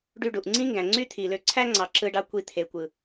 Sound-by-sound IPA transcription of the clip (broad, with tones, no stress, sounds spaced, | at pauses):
ɖ y˧ ɖ u˨ ʔ ŋ͡ǀ ĩ˦ ŋ ɡ æ̃˨ ŋ͡ǀ y˦ t̪ʰ i˨ l ø˧ ǀʰ æ˦ ŋ͡ǀ ɑ˨ ǁ ɯ˧ ɖ ɑ˧ kʷ i˧ t̪ʰ e˨ kʷ ɯ˨